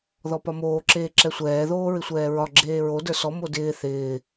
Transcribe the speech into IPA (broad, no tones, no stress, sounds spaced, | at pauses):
ð ɔ p ɒ m oː ǁ eː ǁ ɛ sʷ ɛː ð oː ɹ ɪ sʷ ɛː ɹ ɒ ɡ͡ǁ eː ɹ o d ə˞ s ɔ m o d ɪː θ ɪː